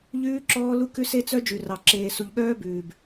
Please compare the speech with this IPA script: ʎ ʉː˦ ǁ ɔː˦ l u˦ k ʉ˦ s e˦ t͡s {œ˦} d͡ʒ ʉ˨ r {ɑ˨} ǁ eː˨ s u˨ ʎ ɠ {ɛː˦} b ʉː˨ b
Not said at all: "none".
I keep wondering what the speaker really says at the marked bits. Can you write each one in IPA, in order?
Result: œ˦, ɑ˨, œː˦

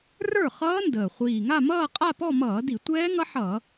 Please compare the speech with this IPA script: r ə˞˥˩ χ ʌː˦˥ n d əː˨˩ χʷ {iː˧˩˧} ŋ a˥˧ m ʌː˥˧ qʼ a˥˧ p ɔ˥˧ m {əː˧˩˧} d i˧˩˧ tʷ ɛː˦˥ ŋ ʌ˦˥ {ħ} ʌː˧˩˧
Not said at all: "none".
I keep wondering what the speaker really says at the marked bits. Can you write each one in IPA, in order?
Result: iː˨˩, ʌː˧˩˧, ħ

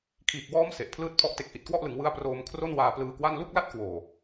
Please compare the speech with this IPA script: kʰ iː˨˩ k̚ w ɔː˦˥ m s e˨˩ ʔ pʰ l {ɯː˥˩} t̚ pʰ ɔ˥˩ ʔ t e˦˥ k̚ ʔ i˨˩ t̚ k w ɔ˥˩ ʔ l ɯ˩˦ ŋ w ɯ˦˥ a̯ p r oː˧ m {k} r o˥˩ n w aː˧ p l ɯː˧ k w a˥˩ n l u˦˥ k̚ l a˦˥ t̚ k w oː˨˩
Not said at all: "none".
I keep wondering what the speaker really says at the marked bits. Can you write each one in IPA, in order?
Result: ɯː˥˩, kʰ

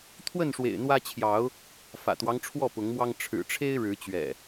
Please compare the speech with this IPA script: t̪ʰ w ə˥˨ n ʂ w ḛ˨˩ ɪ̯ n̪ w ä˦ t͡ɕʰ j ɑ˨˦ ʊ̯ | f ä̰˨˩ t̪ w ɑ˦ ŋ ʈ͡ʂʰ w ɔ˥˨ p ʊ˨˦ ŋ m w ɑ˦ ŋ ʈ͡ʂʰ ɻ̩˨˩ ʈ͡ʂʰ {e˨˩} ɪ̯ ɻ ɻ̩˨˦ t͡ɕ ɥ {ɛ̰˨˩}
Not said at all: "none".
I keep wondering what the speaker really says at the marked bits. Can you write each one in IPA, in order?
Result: e˦, ɛ̰˨˩

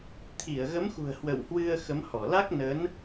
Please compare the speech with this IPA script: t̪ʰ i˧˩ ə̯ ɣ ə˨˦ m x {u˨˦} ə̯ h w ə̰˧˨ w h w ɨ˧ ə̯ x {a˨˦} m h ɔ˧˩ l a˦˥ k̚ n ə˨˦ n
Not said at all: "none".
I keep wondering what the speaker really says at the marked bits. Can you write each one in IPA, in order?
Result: ṳ˨˩, ə˨˦

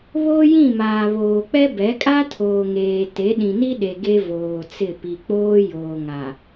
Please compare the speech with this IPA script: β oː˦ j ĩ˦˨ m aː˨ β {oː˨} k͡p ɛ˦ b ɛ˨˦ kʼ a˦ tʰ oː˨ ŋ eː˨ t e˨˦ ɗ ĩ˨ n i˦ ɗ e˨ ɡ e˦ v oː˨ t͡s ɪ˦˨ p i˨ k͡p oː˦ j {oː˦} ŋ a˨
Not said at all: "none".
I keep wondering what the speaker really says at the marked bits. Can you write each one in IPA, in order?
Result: oː˨, oː˨

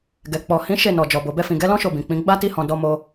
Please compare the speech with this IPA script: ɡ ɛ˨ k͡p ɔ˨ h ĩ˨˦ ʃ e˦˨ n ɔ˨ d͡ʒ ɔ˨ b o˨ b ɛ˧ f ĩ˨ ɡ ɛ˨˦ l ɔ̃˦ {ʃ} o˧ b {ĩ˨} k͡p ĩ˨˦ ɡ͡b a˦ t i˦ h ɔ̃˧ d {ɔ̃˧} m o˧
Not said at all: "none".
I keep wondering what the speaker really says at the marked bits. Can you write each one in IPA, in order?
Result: ʃ, ĩ˨, ɔ˧

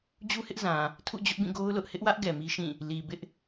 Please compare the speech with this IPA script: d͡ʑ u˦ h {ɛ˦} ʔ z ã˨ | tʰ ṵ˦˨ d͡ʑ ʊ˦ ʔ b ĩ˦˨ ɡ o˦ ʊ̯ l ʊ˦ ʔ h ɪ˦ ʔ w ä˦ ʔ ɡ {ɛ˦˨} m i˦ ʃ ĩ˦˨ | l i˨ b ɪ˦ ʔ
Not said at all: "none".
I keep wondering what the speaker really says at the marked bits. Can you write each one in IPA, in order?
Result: ɪ˦, ɛ˨

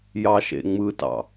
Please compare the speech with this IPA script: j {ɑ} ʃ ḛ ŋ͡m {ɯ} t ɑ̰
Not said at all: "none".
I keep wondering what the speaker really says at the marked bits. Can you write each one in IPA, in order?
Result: ɑ, ɯ

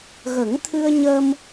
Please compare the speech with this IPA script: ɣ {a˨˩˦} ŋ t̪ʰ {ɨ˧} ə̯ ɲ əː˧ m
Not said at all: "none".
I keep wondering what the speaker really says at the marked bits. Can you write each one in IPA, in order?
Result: ə˨˩˦, ɨ˧

